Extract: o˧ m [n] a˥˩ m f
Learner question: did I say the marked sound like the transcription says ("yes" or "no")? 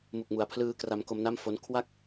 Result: yes